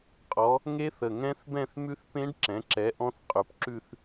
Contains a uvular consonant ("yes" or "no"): yes